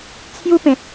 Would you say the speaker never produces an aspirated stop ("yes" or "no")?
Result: no